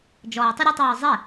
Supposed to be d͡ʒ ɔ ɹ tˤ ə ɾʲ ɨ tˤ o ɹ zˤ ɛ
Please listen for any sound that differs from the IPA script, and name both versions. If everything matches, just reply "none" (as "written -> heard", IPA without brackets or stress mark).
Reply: none